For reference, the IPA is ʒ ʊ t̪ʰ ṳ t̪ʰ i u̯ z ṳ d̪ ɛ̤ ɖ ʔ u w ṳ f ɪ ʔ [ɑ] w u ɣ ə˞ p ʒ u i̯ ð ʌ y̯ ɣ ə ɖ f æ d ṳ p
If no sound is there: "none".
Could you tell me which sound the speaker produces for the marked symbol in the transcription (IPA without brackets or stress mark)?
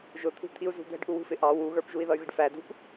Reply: ɑ